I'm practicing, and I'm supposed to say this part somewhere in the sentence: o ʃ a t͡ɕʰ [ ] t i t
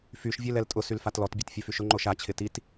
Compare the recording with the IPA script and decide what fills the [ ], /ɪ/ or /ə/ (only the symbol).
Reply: ɪ